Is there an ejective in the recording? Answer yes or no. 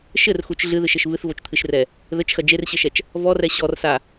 no